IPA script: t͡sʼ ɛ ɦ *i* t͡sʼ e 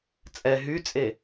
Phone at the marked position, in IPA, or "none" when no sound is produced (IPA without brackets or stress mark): y